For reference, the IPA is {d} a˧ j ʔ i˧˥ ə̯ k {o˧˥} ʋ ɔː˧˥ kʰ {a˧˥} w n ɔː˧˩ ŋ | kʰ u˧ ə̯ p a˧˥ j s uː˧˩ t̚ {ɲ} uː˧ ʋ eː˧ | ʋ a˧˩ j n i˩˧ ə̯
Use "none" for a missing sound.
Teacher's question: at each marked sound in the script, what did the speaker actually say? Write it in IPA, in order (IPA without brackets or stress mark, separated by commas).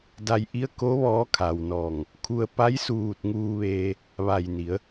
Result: d, o˧˥, a˩, ŋ